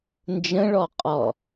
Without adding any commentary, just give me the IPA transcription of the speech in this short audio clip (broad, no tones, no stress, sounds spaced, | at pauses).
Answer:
n d͡ʒ ə̃ ɭ ɔ qʼ ɔ